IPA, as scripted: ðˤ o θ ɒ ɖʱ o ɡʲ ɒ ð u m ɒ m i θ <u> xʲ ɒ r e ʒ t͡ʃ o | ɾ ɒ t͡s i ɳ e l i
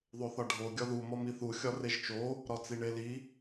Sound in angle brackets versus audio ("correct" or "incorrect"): correct